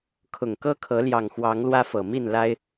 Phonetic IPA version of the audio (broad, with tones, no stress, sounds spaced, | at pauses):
kʰ ʊ˨˩ ŋ k ɤ˦ kʰ ɤ˨˦ l j ɑ˨˩ ŋ x w ɑ˨˦ ŋ l w ä˦ f ɤ˨˩ m i˥˨ n l a˦ ɪ̯